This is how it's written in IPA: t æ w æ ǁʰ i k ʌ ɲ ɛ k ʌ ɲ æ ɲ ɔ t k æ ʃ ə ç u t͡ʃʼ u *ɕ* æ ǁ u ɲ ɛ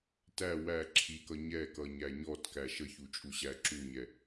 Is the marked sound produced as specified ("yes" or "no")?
yes